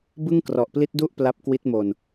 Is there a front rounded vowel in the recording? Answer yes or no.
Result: no